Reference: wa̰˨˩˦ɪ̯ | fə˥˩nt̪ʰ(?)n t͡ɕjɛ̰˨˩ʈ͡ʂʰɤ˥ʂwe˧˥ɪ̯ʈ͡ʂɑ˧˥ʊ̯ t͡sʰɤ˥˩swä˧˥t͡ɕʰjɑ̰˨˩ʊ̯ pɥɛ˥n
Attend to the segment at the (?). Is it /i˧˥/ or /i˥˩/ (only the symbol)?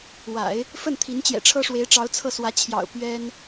i˧˥